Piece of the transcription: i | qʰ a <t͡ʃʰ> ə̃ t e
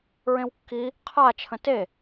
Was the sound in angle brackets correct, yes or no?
yes